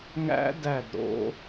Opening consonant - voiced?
yes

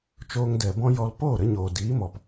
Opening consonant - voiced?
no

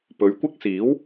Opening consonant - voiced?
no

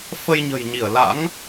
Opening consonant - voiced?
no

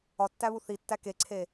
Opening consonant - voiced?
no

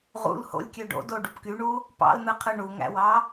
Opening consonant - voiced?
yes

